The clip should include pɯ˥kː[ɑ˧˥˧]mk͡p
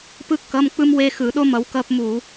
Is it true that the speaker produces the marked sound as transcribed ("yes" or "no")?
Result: no